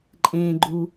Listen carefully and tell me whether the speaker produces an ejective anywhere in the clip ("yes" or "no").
yes